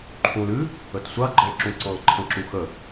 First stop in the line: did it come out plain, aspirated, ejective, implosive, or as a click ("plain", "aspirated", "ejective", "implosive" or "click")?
click